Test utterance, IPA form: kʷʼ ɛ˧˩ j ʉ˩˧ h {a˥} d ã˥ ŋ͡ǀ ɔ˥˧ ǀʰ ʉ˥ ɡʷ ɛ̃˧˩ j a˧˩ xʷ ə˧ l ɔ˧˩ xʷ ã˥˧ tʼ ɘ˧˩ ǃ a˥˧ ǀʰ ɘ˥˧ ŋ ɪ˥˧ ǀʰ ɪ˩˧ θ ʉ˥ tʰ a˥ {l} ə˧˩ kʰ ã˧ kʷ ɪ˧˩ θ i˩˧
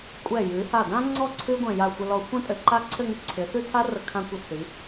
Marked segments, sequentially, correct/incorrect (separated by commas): incorrect, incorrect